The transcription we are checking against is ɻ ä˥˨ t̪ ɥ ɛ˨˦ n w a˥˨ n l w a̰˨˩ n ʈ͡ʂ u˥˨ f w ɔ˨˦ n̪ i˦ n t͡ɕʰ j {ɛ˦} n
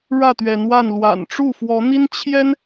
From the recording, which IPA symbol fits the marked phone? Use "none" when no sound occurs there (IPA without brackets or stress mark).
ɛ˦